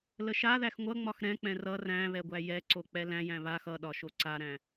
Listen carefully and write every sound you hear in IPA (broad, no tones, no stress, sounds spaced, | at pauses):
l ə ʃ a ð æ x ŋʷ ʌ ŋ͡m ɒ x ɾ ɛ̃ k͡p ɛ̃ r ʌ r æ̃ β ɛ ɡʷ æ j ɛ ǀ o k͡p ɛ l æ̃ j æ̃ β a x ʌ ɗ ɒ ʃ o ǀ a ɾ æ̃